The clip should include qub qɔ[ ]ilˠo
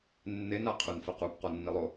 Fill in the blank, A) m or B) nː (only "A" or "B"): B